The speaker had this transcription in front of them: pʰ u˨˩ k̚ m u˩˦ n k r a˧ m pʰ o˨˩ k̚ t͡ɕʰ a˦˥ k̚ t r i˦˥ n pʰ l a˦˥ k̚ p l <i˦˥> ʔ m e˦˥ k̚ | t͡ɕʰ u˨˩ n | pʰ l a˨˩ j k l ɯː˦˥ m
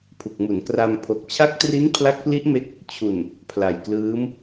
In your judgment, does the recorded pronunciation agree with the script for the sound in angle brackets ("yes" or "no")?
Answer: yes